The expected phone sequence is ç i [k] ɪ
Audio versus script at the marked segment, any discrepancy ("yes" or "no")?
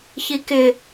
no